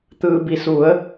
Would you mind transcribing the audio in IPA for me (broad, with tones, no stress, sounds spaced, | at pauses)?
t̪ ɯː˩ b i˩ s u˩˧ ə̯